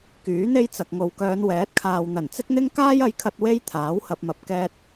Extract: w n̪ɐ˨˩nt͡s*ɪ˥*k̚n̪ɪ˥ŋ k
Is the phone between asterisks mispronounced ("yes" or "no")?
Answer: no